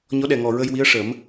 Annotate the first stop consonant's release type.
implosive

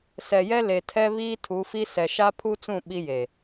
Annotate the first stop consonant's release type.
aspirated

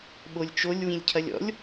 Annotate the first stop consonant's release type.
implosive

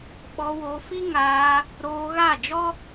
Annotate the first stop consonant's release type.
implosive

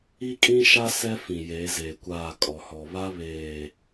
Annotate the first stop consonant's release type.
ejective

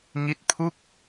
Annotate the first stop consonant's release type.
plain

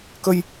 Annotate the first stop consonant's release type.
plain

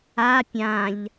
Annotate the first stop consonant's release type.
plain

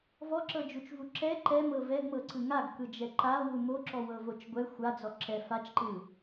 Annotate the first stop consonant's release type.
click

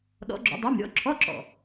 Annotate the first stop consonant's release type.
implosive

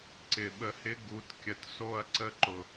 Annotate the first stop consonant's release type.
click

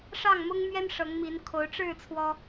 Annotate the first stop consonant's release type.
aspirated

